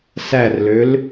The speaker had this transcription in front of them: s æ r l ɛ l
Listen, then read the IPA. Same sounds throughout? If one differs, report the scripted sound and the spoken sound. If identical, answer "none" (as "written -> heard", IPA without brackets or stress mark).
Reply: ɛ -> ø